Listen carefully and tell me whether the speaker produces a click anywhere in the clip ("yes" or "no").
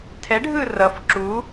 yes